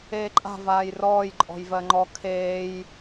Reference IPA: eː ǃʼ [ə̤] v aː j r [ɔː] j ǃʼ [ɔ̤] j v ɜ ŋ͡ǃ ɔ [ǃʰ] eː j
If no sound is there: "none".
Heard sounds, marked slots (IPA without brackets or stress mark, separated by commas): a̤, ɔː, ɔ̤, kʰ